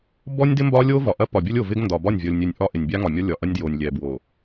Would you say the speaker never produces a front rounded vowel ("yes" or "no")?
yes